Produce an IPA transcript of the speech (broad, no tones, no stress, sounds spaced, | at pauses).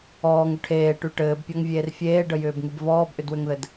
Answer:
ɔː ŋ ʏ ʈʰ eː ʈ y ʈ ɘː b pʲ ɔ ŋ vʲ eː r fʲ eː ɖ ə j ʏː b ŋ y b v ɔː b ʔ ʏ d w ʏ ŋ ð ɘ d